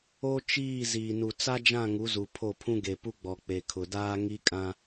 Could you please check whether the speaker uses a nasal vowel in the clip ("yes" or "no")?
yes